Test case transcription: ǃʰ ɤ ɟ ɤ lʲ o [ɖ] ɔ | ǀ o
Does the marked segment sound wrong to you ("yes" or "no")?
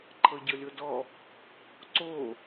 yes